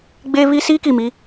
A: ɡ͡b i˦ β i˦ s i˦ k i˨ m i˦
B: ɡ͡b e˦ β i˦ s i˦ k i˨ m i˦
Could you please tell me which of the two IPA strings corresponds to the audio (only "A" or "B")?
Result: B